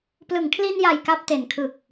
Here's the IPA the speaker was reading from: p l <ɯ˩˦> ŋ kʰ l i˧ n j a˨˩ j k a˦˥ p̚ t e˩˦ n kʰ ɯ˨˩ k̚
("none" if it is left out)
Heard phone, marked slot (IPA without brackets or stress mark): ɯ˩˦